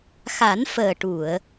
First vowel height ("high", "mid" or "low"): low